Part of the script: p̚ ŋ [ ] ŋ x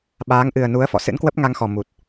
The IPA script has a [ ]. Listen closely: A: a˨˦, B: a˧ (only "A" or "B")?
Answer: B